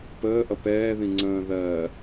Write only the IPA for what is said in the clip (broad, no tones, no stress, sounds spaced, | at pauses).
p əː ʔ ʌ p ɛː ð ĩ ŋ͡ǀ ə̃ː ð ɜː